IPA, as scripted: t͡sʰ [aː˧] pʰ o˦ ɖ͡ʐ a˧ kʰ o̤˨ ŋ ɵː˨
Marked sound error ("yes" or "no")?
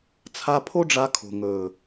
yes